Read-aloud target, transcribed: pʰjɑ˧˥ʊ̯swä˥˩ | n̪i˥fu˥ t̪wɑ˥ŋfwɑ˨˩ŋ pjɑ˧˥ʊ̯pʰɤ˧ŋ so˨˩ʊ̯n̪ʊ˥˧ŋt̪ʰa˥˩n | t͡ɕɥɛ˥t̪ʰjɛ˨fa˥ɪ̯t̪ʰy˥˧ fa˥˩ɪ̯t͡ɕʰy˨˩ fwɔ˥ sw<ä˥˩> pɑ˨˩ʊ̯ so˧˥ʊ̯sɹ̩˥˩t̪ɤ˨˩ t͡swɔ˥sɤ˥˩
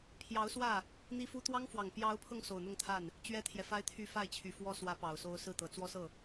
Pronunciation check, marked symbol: incorrect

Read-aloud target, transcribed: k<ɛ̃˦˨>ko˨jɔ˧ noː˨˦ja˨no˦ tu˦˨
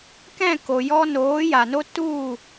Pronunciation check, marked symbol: correct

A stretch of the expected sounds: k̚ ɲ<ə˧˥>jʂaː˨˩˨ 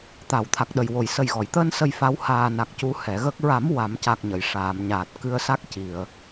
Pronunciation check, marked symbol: incorrect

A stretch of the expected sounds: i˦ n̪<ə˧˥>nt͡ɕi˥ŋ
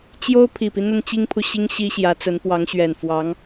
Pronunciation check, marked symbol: incorrect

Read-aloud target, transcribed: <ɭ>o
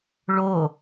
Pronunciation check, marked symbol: correct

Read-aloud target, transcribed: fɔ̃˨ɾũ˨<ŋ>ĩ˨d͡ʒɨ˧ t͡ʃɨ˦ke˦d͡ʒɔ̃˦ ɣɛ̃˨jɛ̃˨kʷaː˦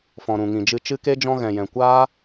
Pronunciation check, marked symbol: correct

